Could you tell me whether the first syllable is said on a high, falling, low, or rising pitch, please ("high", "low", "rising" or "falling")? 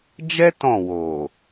high